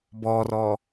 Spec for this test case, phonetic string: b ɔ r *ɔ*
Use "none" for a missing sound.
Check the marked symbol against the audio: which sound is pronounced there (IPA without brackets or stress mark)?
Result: ɔ